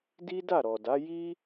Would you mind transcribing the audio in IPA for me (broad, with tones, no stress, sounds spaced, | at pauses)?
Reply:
d i˦ d a˦˨ ɾ ɔ˨ d a˨˦ j i˦